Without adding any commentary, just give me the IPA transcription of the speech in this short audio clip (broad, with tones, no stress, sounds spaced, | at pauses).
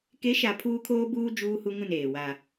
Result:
k e˨˦ ʃ a˨ pʰ uː˦ kʰ oː˦ b uː˦ d͡ʒ uː˦ h u˦ ŋ ũ˦˨ n eː˨ w a˦